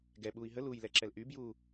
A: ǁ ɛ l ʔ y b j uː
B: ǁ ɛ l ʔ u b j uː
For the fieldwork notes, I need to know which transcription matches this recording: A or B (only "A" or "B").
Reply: A